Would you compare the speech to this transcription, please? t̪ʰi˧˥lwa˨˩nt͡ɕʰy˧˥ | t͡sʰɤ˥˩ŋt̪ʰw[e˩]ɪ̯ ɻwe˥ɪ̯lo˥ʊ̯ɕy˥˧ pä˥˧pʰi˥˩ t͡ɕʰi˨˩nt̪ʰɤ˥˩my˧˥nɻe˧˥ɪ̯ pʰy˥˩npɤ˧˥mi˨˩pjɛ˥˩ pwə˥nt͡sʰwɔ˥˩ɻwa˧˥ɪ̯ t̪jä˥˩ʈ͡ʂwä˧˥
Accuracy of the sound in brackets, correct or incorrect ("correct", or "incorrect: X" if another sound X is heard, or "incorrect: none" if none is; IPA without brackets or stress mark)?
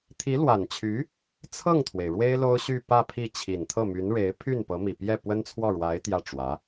correct